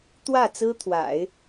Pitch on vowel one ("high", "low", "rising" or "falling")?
falling